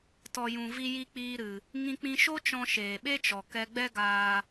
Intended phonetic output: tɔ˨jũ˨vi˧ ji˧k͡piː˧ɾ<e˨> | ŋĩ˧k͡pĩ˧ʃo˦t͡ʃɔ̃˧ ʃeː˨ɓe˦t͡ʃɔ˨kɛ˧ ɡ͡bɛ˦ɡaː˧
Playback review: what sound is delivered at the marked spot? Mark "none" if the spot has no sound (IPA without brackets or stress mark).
ɨ˨